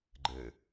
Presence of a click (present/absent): present